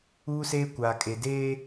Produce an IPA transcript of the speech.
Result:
uː˦seː˦ kʷaː˨kʼe˨ deː˦

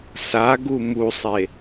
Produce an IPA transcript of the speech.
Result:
saɡu musˤe

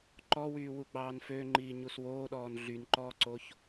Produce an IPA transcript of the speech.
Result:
ǃɔwyːwu ɡ͡bɑːnfø ŋ͡ǃiːɲuswoːɗɔːn ɮynǃɔːǀoç

